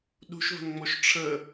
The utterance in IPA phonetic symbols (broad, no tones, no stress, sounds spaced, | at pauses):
ɗ ṳ ʃ v ə̤ n ŋ͡m o ʃ ʈ͡ʂʰ ə